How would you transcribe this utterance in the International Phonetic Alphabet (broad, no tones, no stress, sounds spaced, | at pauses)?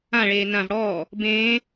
ã ɭ eː n ã v ɽ ɔː | b ẽː